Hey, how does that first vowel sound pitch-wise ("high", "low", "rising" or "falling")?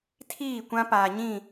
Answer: falling